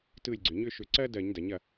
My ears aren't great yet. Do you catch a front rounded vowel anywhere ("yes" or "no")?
yes